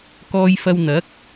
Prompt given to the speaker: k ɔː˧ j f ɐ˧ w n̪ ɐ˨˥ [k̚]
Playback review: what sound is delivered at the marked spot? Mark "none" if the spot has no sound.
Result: k̚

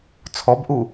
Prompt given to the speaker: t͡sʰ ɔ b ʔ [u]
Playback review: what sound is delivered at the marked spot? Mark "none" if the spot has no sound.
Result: u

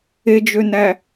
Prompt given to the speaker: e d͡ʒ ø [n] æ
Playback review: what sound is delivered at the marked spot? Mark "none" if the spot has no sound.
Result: n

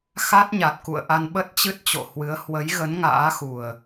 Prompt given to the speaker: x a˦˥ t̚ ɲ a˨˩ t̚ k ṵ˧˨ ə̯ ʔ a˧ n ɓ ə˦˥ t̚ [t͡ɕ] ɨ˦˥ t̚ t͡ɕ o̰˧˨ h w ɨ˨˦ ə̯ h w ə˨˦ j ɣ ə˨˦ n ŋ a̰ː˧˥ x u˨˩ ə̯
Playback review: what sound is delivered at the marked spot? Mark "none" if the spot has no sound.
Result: t͡ɕ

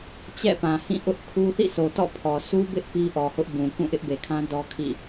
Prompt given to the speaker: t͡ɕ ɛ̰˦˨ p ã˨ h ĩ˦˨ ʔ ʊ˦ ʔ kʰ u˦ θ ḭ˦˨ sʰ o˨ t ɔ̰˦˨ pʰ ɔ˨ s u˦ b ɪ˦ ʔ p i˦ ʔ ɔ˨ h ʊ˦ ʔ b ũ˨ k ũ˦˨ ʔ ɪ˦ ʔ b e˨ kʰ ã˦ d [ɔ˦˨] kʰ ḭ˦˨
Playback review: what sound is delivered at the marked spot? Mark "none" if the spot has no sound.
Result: ɔ˦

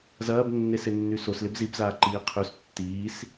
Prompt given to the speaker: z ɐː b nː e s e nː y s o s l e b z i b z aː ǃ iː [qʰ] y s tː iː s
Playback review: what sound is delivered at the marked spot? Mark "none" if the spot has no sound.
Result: qʰ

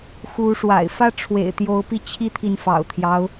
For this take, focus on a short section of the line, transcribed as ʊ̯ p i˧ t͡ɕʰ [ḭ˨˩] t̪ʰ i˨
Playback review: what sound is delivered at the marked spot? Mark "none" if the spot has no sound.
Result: i˦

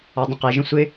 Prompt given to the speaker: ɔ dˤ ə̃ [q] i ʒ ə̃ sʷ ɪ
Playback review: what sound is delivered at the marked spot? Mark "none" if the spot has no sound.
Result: q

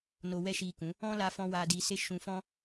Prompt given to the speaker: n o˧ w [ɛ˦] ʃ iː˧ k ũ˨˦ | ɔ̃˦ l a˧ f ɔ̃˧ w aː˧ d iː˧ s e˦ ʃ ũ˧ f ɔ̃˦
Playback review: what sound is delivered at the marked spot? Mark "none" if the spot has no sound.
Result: ɛ˦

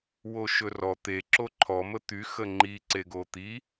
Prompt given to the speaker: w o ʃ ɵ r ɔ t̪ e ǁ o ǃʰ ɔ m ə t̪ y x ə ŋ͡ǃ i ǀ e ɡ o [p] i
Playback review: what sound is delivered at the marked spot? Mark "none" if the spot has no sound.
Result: t̪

